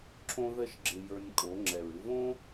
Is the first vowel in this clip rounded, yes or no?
yes